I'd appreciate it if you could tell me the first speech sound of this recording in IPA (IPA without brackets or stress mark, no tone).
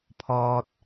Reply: pʰ